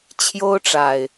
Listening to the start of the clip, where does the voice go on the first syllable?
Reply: high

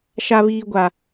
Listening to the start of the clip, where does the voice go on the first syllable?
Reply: high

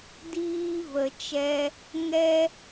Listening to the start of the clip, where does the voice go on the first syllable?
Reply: high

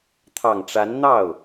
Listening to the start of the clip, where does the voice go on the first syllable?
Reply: low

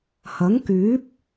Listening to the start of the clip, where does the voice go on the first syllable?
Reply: rising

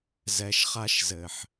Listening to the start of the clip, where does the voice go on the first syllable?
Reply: low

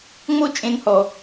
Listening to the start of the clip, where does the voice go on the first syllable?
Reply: high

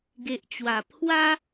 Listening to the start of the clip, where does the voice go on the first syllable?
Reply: low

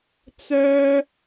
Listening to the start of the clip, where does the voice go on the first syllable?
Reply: high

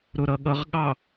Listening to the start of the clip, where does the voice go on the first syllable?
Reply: low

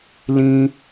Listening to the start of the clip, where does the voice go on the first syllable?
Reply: high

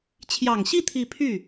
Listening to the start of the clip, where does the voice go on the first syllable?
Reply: low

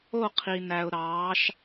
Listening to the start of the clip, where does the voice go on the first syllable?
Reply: falling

